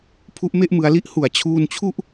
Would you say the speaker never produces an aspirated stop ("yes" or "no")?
no